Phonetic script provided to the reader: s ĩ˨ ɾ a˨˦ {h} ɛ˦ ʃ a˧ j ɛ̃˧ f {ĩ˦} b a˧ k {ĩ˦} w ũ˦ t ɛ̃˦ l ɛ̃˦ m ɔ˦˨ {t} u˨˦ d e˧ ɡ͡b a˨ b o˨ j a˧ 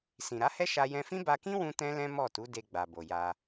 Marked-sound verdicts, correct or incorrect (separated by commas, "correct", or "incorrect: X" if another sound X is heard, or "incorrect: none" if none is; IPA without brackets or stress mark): correct, correct, correct, correct